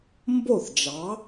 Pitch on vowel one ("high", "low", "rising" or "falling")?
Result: falling